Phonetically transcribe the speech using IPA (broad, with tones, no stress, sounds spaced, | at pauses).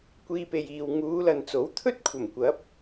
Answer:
kʷ iː˧ p e˨ j iː˨ w ŋ uː˨˧ l ɐ˨ n t͡s o˨˥ w t̪ʰ ɵ˥ t̚ kʷʰ ɐ˨˩ m kʷ ɐ˨˥ p̚